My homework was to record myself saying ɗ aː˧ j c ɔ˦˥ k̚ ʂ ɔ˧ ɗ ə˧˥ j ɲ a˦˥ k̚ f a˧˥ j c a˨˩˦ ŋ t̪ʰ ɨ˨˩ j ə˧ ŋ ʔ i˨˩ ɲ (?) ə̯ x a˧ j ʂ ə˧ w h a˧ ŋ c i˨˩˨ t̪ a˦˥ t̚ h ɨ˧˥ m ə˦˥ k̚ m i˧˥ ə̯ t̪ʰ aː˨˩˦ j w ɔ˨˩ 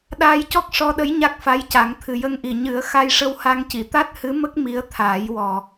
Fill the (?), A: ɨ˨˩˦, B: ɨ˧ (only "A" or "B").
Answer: A